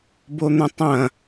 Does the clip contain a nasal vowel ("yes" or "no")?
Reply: yes